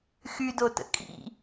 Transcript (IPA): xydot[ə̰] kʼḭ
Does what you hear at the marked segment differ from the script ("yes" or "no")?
no